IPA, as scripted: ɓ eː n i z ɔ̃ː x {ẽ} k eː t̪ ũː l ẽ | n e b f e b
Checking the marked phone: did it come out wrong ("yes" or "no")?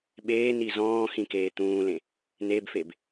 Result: yes